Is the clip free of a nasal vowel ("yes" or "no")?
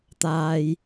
yes